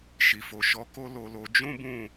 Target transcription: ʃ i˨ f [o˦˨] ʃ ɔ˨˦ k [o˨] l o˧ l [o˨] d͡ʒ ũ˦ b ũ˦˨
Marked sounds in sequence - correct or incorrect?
incorrect: o˨, incorrect: o˦, incorrect: o˧

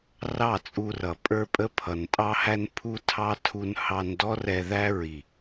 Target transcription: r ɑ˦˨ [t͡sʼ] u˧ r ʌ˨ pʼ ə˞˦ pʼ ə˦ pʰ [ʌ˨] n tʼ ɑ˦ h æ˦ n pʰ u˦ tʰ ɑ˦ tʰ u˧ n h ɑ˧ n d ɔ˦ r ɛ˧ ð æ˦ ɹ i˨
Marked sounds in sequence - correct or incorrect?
correct, correct

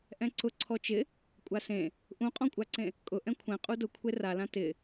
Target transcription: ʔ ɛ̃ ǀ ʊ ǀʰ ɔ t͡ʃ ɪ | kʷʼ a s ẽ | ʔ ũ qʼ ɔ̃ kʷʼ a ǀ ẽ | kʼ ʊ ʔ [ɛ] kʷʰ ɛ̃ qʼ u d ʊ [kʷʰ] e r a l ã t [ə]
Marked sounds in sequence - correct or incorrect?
incorrect: ɛ̃, correct, incorrect: ɪ

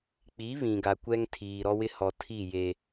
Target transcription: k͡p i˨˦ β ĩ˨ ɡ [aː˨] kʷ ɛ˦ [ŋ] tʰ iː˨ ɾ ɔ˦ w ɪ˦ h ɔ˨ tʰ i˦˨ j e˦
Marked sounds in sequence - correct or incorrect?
incorrect: a˨, correct

